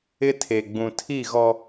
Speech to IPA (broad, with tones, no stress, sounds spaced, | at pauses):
ɪ˦ tʰ e˨ ɡ͡b ũ˨ tʰ i˦˨ ɣ ɔ˦